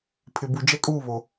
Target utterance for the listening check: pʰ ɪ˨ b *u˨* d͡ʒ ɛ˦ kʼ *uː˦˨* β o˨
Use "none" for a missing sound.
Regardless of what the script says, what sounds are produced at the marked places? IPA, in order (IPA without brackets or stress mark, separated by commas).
u˨, uː˦˨